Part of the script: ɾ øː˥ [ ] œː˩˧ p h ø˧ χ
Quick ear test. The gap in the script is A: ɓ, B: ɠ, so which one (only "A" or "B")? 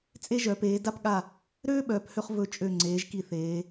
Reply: A